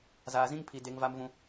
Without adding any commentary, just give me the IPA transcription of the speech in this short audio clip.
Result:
z aː˨ z ĩ˦ ŋ pʰ i˨ d e˨˦ ŋ v a˦ m v ũ˦

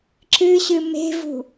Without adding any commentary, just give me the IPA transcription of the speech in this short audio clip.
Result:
ǁ ɨ ɕ ɨ m e̤ v ṳ

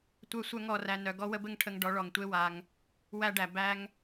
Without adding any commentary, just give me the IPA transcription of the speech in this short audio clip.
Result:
tʷ œ˧ sʷ œ˦ ŋ ɔ˦˨ r æ˧ n œ˨ ɡ ɔ˦ w ə˦ b ɘ˦ ŋ ʈʰ ə˧ ŋ ɖ ɔ˨˦ ɭ ɔ˨ ŋ tʷ e˦ w a˧ ŋ | w æ˦ ɖ æ˨ b æ˦ ŋ

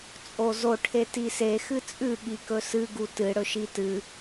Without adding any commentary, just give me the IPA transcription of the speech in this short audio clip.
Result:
t͡sʼ o z o ʈʰ e t i s e x ɨ t͡sʼ ʉ ɠ i k ɵ s ɨ ɡ u t ɨ ɽ ɵ ʃ i t ɨ

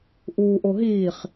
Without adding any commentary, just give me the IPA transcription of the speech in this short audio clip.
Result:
ʔ uː ʔ o ɦ iː χ

